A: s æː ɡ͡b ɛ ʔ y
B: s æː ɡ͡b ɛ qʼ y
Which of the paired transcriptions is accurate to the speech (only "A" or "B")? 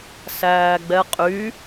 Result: B